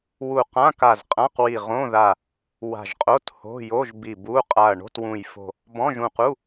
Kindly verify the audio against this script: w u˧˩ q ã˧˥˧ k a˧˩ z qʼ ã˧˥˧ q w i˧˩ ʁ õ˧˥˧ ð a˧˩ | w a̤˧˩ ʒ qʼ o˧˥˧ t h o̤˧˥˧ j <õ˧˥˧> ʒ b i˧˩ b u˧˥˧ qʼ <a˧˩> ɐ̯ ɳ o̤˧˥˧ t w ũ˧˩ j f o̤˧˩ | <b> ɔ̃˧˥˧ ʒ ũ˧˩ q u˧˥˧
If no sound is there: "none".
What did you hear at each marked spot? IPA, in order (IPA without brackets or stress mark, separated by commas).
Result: o˧˥˧, a˧˩, b